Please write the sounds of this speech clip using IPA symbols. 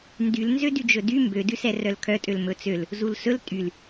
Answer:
ndyl nzødyd͡ʒɵdy mbø dʉsɛrœlkʰœ tʼølmɵt͡søl | zulsɵl tʼyl

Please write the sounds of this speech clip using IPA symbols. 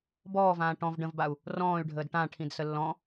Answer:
bɔːvãː ʈɔ̃v ɖə̃vbau̯ | rɔ̃ːy̯ɖʱəːd ʈãʈʰĩdsə lːɔ̃

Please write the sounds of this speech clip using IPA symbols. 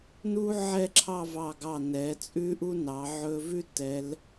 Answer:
nu˥ ʕɛ˥˧ǁʰɑ˥˧vɑ˧˩ɡɑ˧˩ nɛ˩˧t͡sʼʉ˥ ʔu˥nɑ˩˧ ʕɵ˧ vʉ˥tɛ˩˧l

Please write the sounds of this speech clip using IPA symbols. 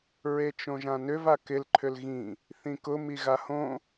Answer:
ɹet͡ʃõʒãnʏv akɪl ǃʰʏlɣĩ | θĩkʊ miɣahõ

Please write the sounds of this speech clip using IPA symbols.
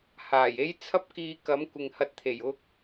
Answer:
haː˨˩je˥j t͡sʰɐ˥p̚kiː˧kɐ˨˥mkʷɪ˨ŋ hɐ˧t̚t̪ʰe˨˩j ʊ˥k̚

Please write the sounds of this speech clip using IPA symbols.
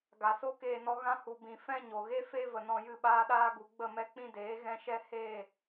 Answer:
ɡa˨so˦keː˧nɔ˧ ɣã˧hu˨bĩ˨ fɛ̃˧ ɲo˨ɣe˦fe˦ və˨nɔ̃˧ jɨ˦˨ɓaː˦ɗaː˦ ɡu˨ɡ͡bə˦˨ mɛ˦k͡pĩ˦deː˨˦ ɣɛ̃˦ʃɛ˦ he˦˨

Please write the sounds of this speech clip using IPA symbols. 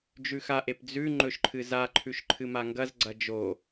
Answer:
d͡ʒʉxaʔep d͡zʉ ŋ͡ǃɵʃǃʰɨzaǃʰʉʃ ǃʰɨmaŋɡɐzɡ͡ǀɐ d͡ʒo

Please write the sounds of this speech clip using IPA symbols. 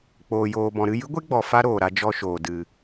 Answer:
k͡poː˨joː˨bɔ̃˨ ɾɨ˦˨jɨ˦ɡʷe˦ɡ͡bɔ˨ fa˦ɾoː˨ɾa˧ d͡ʒɔ˧ʃoː˨ dɨ˨

